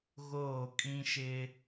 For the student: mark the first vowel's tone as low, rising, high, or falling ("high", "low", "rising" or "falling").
falling